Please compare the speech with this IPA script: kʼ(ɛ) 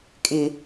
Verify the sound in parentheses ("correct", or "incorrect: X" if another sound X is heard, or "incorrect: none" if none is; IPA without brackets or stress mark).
incorrect: ɪ